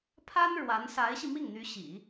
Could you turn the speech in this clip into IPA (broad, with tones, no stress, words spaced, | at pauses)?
pʰa˥n ɻwa˧˥n sa˧˥ɪ̯ɕi˧ mi˥˩ŋn̪y˧˥ ɕḭ˨˩˦